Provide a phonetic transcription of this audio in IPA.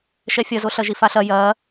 ʃ ɛ fʲ ɐ z o ɬ ɐ ʒ i f a ɬ ɐ j ɐ

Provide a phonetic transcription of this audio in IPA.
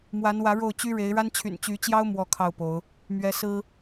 m w a˨˦ n w ä˨˦ ɻ o˥˨ ʊ̯ t͡ɕ y˦ ɻ e˨˦ ɪ̯ ɻ a˦ n t͡ɕʰ y̰˨˩ n t͡ɕ y˨˦ t͡ɕ j ɑ˦ ʊ̯ m w ɔ˥˨ kʰ ɑ˥˨ ʊ̯ p o˨˦ ʊ̯ | m ɥ ɛ˦ s ɹ̩˦

